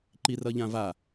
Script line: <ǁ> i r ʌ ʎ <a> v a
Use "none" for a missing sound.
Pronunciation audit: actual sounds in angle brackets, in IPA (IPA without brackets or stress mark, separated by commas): ǃ, ã